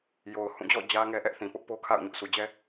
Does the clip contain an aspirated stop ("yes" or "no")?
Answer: yes